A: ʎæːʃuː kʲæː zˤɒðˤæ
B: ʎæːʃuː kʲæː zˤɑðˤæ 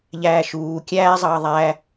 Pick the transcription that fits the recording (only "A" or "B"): B